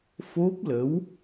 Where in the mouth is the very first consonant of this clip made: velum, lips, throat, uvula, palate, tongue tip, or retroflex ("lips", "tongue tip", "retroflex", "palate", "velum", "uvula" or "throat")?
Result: lips